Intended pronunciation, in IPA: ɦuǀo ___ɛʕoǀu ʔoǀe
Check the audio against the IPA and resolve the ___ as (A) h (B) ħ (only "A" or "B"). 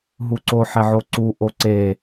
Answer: B